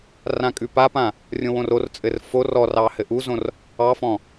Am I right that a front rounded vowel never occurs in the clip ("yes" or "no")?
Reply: yes